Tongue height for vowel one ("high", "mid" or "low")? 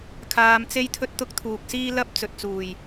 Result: low